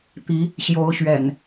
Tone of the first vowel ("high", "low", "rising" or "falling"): rising